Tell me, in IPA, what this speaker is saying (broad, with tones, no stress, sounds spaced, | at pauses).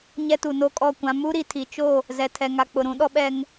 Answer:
ɲ ɛ˦ t u˨ n o˦ kʼ ɔ˦˨ kʷ ã˦ m u˦ ɾ i˨ tʰ i˨ t͡ʃ o˦˨ | z ɛ˨ tʰ ɛ˨ ŋ a˨ k͡p ʊ˨ ɾ ũ˨˦ ɗ ɔ˦ ɓ ɛ˦ ŋ